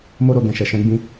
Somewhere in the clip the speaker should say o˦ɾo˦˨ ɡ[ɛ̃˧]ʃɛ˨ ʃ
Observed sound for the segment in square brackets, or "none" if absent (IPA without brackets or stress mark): ɛ̃˧